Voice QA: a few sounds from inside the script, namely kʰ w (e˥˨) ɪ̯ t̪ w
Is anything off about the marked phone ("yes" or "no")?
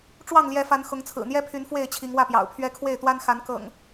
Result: no